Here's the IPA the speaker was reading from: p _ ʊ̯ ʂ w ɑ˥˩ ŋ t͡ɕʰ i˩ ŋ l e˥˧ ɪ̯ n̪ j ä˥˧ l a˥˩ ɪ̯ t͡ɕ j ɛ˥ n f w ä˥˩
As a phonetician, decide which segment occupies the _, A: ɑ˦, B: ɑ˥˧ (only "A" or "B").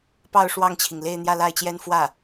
B